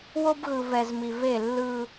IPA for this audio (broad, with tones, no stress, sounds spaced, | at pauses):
w o˦ b ɣ ɯ˨ v ɛ˨ z m i˨ v e˦˨ lː ɯ˦